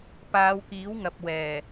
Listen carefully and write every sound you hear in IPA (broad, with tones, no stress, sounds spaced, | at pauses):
p aː˨˧ w k iː˨˥ w ŋ ɐ˨ p̚ w ɛː˨˩